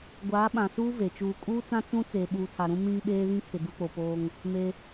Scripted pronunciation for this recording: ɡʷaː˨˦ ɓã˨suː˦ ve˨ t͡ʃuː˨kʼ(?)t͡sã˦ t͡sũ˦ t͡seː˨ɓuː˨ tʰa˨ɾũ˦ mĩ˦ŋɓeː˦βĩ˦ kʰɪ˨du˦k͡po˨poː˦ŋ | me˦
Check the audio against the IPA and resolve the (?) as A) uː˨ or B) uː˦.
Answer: B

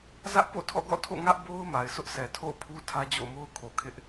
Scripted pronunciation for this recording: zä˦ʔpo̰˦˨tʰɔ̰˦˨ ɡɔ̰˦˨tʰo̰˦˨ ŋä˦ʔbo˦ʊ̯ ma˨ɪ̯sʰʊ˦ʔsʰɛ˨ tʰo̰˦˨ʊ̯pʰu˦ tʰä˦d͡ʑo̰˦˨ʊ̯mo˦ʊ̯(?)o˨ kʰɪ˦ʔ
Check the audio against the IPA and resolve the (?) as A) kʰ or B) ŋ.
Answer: A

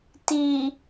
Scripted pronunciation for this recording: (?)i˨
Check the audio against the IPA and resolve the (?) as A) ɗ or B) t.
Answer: B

